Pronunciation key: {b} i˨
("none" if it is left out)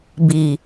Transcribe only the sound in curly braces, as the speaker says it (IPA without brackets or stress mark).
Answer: b